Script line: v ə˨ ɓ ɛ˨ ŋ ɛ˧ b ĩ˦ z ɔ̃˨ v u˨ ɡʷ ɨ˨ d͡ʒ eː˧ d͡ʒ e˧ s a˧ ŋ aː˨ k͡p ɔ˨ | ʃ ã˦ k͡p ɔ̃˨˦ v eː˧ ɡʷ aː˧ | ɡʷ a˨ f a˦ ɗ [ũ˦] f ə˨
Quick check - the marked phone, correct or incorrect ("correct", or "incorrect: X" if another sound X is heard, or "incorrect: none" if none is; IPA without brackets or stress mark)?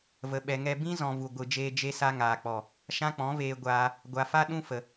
correct